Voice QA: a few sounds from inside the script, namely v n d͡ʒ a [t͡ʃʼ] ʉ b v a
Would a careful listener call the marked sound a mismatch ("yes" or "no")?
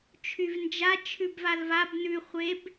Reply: yes